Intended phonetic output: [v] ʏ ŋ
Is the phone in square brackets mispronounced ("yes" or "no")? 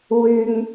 yes